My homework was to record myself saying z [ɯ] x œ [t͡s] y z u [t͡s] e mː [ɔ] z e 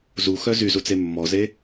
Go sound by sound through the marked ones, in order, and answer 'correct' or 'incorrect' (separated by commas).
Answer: incorrect, incorrect, correct, correct